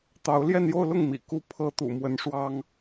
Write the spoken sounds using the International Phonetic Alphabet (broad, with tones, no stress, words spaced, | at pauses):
t̪ɑ˧˥ʊ̯ ljɛ˥˧njo˥˧ʊ̯lʊ˥˩ŋ mḭ˨˩ ku˥˩ pʰɤ˥ t̪ṵ˨˩mwə˧˥nʂwɑ˥ŋ